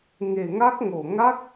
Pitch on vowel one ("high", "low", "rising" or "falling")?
low